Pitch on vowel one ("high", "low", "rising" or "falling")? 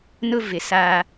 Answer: high